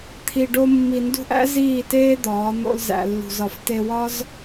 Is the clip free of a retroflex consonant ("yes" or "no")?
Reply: no